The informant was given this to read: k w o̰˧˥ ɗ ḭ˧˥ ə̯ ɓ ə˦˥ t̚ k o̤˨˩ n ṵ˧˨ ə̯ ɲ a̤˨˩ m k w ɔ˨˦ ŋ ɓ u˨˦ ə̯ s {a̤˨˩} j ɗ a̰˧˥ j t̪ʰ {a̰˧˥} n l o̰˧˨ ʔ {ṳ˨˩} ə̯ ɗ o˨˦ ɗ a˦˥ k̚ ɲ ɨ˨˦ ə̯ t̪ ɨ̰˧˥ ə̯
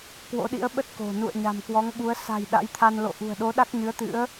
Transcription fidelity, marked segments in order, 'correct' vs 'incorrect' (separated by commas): correct, incorrect, correct